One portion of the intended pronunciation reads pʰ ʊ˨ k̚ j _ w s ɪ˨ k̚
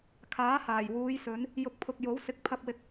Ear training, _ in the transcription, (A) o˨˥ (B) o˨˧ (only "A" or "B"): A